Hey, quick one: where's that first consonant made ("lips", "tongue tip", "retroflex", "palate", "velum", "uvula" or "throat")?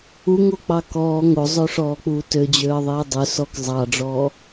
velum